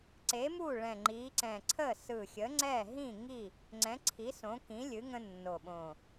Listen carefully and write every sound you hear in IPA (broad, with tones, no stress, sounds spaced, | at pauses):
ǀ e˨˥ m u˥˨ ɭ ɛ̃˧˩ ŋ͡ǃ i˨˥ ǀ ɛ̃˧˩ ǀʰ ə˥˨ s ɯ˧˩ xʲ ə˨˥ ŋ͡ǀ ɛ˥˨ ɦ ĩ˥˨ ŋ i˥˨ | ŋ͡ǀ ɛ̃˨˥ ǀʰ i˨˥ s õ˨˥ k ĩ˨˥ lʲ ɨ˨˥ ŋ ə̃˦ nː o˧˩ ɓ õ˧˩